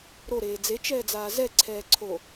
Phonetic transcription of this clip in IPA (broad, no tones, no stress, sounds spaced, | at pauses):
ɾ o ɾ eː d͡z e t͡ʃ ɛː d͡z aː z ɛ ǀʰ ɛː ǀʰ o